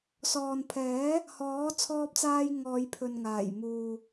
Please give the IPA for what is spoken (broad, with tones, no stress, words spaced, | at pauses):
sɔː˨npʰɛː˨˥ | hɔː˨˥ t͡sʰɔː˧p̚t͡saː˧j ŋɔː˨˧jpʰɵ˨nŋaː˨˩jmuː˨